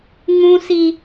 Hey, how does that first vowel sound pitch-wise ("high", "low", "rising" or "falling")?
high